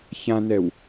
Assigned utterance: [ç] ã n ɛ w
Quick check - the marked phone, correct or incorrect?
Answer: correct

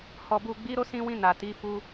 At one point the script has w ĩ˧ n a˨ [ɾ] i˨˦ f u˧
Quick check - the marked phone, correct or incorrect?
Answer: incorrect: t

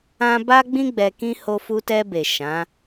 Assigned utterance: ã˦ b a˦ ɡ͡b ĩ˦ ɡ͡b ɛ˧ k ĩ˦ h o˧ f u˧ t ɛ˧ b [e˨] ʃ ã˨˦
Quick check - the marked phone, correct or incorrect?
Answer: correct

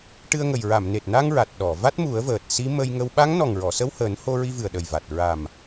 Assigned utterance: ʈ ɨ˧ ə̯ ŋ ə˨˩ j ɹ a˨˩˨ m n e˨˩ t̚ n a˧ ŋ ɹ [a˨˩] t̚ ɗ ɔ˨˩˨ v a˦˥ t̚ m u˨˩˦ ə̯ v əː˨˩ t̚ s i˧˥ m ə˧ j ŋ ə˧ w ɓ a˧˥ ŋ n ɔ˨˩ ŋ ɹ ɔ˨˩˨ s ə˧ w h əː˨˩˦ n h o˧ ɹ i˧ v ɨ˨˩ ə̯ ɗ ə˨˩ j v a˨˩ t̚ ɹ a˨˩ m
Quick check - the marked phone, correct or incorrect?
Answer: correct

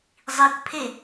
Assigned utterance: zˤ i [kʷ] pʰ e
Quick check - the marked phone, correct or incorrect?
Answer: correct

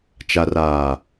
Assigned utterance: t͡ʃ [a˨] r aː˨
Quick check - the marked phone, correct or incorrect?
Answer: correct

